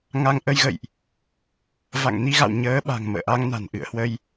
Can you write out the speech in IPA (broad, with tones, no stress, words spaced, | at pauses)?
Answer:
ŋa˧ŋ ʔə˧jɣə̰˧˨jʔ | va̰˧˨ŋni˧ɣa̰˧˨w ɲəː˨˦ɓa̤˨˩ŋ mə̰ː˧˨ʔa˧ŋna̤˨˩n ʔɨ̰˧˨ə̯ hwə˧j